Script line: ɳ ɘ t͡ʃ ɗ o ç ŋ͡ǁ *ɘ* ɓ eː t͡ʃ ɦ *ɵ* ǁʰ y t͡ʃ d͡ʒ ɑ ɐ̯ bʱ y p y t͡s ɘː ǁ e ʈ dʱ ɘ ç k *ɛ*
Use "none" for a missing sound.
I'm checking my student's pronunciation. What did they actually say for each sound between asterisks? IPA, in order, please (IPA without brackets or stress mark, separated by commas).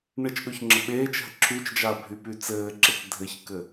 ɘ, ə, ɘ